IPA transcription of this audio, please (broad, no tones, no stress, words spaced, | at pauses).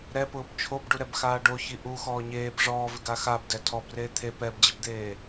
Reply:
ɾɛpʊːb t͡ʃʰobɖuɾɛbxaː ɖoçi ʔuxɔː ɲeːb ʐɔːvɪɡa xabdɛ tʰɔbreː t̪ʰe pɛbd͡ʑɪbd̪eː